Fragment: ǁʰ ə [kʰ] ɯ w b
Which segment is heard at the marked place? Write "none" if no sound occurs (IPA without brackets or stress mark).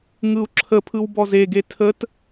pʰ